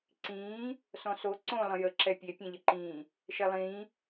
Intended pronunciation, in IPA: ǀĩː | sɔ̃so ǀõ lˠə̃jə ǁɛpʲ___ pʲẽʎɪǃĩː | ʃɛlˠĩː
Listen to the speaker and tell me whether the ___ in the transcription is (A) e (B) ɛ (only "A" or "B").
A